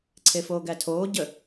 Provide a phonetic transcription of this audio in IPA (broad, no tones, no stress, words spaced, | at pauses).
ǀʰefoːɡætʰoː ɟə